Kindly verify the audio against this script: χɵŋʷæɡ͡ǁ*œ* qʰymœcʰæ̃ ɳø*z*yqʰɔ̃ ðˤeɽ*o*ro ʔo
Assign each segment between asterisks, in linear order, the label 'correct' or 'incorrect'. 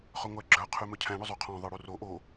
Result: correct, incorrect, incorrect

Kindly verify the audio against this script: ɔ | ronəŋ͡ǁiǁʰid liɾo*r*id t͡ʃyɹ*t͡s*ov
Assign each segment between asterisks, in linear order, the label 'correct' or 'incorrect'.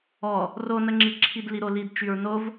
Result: incorrect, incorrect

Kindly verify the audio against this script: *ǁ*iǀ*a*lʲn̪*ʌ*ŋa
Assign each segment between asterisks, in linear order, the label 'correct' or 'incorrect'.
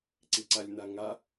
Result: incorrect, correct, incorrect

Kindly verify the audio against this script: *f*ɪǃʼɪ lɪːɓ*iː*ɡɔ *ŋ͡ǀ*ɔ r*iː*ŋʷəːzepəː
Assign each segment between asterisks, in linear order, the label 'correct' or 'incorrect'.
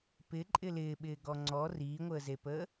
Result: incorrect, incorrect, correct, correct

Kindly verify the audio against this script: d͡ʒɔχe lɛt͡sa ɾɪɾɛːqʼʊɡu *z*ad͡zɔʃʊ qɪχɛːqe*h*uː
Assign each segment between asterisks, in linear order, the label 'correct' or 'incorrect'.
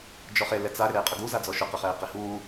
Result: correct, correct

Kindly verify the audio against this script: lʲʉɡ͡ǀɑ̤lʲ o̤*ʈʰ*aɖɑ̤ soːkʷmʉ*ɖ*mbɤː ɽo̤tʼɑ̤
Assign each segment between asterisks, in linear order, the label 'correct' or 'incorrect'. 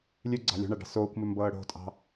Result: incorrect, incorrect

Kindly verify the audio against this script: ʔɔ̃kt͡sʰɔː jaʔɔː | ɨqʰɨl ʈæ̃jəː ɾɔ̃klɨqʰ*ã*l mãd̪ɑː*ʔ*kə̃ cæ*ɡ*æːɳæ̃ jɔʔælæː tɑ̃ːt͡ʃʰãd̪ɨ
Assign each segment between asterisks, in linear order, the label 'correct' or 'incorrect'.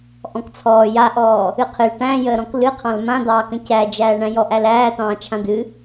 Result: incorrect, incorrect, incorrect

